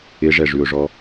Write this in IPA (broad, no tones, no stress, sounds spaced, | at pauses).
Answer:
ɪ ʐ ɛ ʐ ʉ ʊ̯ ʐ ɔ